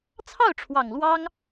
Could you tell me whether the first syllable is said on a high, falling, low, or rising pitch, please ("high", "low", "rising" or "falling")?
falling